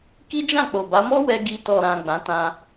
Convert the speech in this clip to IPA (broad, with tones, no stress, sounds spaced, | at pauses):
k i˦ d͡ʒ ã˦˨ k͡p o˨ b a˨˦ m ɔ˦ w ɛ˧ ɡ i˧ t ɔ˨ ɾ ã˨ ɡ͡b ã˨˦ t ã˧